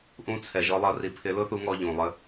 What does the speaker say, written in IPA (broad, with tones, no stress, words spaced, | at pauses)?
ʔũ˥t͡sʰɛ˧ ʒɔ˧˥lˠʌ˧˥ri˧pʰɪ˧˥ lʊ˥θu˧˥ŋɔ˧ ʎũ˩lˠə˧